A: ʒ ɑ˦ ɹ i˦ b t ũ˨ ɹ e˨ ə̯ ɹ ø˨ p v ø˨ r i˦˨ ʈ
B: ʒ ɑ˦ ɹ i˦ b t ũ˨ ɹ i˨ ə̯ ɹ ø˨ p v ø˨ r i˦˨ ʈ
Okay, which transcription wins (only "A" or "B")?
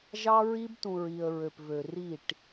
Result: B